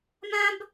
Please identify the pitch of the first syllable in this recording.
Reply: high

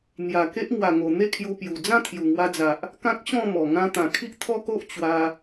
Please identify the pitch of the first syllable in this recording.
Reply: low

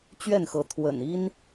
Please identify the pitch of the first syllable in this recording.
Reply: falling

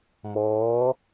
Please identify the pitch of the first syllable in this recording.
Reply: rising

